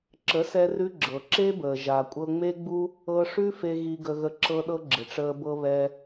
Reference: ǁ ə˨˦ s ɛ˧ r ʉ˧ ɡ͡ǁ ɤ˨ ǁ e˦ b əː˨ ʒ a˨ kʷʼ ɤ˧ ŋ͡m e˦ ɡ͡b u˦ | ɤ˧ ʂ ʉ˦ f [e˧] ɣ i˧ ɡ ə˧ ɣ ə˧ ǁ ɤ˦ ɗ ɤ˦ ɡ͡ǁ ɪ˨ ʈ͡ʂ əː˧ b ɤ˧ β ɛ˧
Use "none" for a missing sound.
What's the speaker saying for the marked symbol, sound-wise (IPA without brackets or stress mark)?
e˧